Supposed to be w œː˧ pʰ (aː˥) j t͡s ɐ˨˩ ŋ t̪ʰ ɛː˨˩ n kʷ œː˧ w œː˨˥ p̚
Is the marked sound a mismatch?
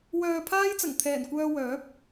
no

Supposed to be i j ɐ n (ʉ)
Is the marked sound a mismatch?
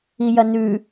no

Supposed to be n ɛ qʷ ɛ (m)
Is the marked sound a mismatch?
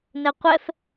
yes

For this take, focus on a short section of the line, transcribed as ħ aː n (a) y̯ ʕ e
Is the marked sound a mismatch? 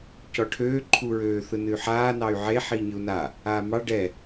yes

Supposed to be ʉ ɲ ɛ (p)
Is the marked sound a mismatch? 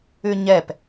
no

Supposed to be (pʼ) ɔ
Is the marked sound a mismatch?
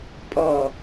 no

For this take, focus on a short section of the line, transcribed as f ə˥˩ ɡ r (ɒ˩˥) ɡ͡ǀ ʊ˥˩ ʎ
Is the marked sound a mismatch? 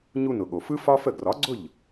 no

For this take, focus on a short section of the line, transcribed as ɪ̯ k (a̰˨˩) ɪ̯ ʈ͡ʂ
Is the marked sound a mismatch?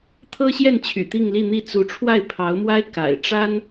no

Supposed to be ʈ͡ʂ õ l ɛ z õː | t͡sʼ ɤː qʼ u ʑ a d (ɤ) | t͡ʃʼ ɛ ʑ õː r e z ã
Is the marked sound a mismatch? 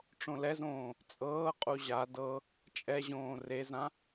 no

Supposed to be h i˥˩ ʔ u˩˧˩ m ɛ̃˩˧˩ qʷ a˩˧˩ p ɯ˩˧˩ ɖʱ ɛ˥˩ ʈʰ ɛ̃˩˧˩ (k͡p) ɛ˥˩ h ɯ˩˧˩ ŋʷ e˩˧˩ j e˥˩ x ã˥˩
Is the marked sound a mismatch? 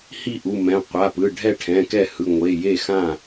yes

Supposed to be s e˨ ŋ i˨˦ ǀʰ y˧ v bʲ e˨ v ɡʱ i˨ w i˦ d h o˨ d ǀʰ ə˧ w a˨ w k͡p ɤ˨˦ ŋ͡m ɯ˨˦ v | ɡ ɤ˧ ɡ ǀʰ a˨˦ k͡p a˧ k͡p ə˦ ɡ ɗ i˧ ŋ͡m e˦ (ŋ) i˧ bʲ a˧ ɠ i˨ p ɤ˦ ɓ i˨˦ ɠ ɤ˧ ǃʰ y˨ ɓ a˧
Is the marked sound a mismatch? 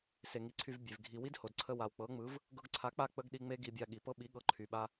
yes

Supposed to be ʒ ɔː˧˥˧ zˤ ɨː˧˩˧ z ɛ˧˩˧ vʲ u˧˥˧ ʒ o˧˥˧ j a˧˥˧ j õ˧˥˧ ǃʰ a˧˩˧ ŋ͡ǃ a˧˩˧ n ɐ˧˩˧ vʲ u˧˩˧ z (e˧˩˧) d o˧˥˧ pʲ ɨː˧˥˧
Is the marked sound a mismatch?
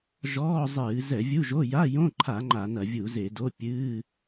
no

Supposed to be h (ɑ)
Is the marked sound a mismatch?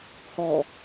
yes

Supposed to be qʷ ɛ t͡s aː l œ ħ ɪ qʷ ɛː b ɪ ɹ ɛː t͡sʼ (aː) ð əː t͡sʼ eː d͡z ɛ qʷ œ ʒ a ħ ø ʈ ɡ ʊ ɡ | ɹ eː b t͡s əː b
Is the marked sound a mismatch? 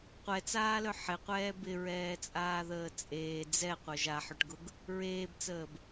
no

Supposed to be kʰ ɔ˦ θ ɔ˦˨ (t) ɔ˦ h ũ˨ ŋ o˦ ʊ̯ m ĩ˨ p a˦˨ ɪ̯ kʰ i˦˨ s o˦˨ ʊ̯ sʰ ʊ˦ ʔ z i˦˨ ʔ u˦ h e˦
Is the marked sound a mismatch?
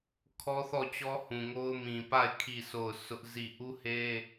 yes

